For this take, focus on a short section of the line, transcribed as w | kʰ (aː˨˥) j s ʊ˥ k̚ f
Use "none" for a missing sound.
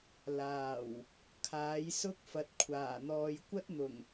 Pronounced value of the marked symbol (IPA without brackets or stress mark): aː˨˥